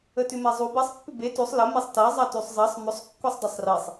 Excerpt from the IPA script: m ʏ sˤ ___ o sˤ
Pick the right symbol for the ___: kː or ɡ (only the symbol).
kː